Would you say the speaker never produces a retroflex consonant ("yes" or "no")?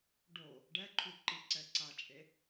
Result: no